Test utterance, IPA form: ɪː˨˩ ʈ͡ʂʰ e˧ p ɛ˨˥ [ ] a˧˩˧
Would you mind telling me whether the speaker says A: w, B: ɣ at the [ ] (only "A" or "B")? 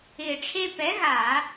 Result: B